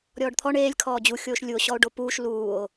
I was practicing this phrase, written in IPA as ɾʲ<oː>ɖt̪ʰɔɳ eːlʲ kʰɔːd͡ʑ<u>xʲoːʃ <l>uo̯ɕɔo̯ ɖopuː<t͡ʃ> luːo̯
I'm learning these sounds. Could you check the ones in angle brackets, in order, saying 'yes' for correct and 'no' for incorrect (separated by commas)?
no, yes, no, no